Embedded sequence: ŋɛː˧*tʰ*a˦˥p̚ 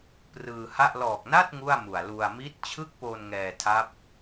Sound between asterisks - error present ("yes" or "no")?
no